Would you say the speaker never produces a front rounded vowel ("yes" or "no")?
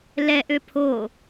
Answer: no